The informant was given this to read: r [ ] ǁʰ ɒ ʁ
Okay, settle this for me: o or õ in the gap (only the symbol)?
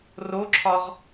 o